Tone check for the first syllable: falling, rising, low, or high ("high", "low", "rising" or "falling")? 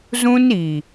high